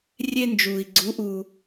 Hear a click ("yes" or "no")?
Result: yes